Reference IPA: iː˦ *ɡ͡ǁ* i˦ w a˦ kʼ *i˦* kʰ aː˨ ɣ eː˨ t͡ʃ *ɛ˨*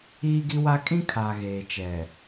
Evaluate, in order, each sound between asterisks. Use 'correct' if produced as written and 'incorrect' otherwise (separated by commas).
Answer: incorrect, incorrect, correct